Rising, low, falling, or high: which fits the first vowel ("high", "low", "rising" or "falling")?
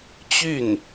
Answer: falling